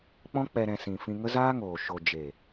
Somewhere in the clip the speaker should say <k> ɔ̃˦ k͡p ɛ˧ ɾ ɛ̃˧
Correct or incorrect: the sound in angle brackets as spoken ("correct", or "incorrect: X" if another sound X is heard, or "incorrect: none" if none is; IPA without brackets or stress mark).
incorrect: k͡p